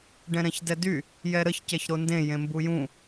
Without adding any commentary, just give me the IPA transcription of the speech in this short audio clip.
ɖ ɛ̃ ɾ ɛ̃ ç d ɛ d y | j ɛ ɾ ə ç c ɛ ç ɾ o n d ẽ j ẽ m b u j ũ

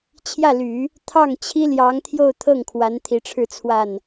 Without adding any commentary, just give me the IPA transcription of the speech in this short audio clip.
t͡ɕʰ j ä˥˩ l y˨˩˦ | t̪ʰ ɑ˥˩ ŋ t͡ɕʰ i˥ l j ɑ˧˥ ŋ t̪ʰ j o˥˧ ʊ̯ t̪ʰ ɤ˥˩ ŋ kʰ w a˧˥ n t̪ʰ i˧˥ ʈ͡ʂʰ ɻ̩˥˧ t͡sʰ w a˥˩ n

